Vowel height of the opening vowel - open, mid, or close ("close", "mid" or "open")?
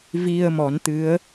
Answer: close